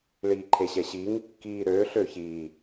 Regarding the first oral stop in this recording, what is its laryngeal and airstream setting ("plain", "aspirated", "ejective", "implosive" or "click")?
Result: click